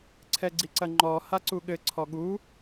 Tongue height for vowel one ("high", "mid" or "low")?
mid